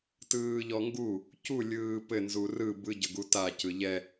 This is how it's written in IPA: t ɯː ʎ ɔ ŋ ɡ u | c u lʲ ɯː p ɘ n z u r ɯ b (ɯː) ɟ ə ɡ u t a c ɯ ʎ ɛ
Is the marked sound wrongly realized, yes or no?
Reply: yes